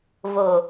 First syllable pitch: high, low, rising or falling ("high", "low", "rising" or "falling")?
low